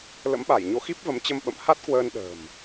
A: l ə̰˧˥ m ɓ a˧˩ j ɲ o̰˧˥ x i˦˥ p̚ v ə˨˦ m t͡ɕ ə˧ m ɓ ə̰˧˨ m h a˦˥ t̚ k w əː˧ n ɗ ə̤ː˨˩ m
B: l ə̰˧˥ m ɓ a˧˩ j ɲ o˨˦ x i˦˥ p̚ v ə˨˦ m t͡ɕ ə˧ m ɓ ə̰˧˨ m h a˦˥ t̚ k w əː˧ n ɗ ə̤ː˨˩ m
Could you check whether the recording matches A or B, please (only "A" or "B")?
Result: B